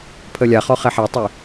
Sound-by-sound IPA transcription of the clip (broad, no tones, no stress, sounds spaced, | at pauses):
pʰ ə lʲ a χ ɔ χ ɛ ħ ɛ tˤ y